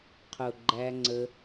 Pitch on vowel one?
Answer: low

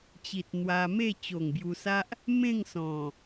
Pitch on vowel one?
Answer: low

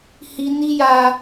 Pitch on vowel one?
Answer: high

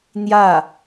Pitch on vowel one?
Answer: falling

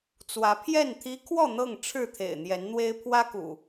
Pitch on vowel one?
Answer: rising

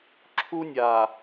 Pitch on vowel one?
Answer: high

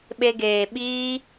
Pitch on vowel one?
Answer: high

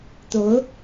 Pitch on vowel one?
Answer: rising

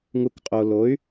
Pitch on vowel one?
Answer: low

